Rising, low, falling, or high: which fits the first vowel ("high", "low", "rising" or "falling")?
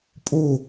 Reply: falling